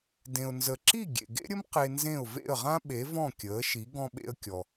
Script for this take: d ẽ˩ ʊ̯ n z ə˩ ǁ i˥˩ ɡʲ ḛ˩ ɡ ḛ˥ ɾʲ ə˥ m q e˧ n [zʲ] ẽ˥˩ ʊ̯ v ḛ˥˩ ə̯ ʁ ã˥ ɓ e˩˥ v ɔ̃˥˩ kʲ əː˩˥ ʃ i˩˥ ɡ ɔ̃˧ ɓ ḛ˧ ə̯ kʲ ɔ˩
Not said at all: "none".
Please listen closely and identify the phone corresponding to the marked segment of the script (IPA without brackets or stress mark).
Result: z